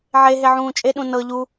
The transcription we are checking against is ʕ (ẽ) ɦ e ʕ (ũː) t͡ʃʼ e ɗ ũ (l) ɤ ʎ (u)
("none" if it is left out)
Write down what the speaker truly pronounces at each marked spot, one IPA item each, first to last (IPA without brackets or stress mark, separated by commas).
e, ũː, n, u